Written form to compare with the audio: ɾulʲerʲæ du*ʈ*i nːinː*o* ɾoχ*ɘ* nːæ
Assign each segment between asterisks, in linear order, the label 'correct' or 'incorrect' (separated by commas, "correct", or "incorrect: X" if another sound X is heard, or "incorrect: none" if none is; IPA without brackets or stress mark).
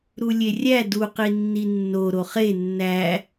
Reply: incorrect: q, correct, incorrect: e